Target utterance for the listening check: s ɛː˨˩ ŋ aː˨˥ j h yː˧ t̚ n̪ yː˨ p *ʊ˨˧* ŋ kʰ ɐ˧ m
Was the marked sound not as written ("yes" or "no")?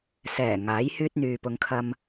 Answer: no